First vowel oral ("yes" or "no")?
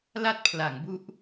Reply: yes